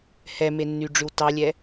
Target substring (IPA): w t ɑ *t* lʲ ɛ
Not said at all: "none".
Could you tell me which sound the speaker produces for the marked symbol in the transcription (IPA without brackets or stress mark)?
none